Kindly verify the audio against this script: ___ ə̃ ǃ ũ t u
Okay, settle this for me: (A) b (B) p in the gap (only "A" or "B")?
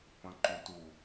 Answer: B